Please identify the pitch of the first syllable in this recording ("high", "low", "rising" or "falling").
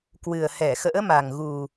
low